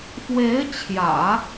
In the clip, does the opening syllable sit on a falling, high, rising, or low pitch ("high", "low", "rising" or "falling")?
rising